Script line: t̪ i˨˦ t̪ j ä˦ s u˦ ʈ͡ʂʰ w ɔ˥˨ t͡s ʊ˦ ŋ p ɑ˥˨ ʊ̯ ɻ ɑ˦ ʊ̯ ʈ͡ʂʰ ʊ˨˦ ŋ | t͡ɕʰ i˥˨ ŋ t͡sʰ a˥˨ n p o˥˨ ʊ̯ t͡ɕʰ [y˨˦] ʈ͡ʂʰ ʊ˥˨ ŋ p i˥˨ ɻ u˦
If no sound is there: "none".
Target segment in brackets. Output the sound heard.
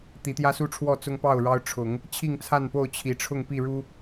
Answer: i˨˦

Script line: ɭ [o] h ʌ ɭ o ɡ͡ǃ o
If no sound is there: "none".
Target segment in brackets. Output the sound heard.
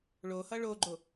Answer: o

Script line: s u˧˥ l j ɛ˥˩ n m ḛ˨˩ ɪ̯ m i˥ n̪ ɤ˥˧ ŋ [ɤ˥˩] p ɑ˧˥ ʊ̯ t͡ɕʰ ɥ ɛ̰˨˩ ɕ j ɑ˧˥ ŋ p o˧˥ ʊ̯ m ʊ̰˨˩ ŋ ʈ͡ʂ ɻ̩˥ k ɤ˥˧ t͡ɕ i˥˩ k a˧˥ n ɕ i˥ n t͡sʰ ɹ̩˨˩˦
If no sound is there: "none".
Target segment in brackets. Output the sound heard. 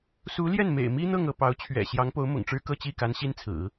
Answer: ɤ˥˩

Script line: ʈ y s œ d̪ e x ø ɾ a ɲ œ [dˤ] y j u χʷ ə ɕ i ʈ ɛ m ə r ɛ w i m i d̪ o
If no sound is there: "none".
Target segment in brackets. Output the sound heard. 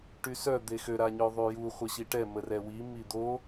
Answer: ðˤ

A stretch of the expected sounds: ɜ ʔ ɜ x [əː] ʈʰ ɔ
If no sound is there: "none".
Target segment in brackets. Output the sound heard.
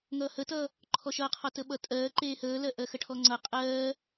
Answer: ə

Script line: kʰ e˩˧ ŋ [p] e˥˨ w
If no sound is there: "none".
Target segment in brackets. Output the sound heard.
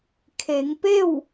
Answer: p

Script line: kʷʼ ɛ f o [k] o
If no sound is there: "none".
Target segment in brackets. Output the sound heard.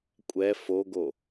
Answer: ɡ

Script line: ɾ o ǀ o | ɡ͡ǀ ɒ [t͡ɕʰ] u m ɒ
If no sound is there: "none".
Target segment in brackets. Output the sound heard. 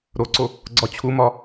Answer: t͡ɕʰ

